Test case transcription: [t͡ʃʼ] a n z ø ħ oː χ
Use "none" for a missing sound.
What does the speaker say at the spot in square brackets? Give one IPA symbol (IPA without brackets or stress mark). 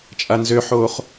t͡ʃʼ